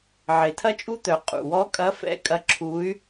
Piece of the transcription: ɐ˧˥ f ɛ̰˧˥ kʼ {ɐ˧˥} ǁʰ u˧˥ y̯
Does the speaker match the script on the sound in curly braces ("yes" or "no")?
yes